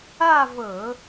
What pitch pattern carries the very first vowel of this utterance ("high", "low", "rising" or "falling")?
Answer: falling